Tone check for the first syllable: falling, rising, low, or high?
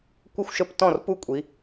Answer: falling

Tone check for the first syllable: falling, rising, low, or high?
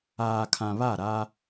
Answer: low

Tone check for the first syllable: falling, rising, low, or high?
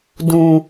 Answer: low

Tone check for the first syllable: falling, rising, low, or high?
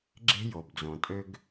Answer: high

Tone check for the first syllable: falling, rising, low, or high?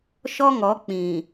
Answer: high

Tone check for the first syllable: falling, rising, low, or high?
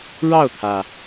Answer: falling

